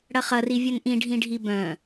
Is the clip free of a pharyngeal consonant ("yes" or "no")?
yes